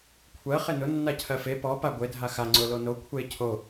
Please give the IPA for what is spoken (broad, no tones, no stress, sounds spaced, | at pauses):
kʷʰ ɜ χ e n ʊ nː a cʰ ɜ f e p ɔ p a ɡʷ e dʱ a x a ŋ͡ǀ ʊ l o n o kʷʰ e cʰ o